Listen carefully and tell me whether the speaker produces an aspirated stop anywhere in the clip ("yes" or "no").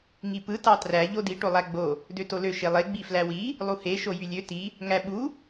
no